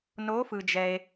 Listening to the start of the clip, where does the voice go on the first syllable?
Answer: rising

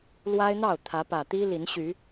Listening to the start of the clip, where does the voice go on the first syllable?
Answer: high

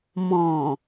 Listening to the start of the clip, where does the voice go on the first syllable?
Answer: low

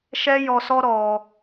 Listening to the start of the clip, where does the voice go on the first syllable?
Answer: high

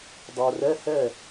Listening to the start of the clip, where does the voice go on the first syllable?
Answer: low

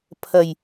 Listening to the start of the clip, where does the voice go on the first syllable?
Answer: low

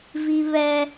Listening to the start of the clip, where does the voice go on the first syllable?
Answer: high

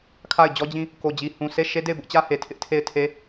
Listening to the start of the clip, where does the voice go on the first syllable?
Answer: falling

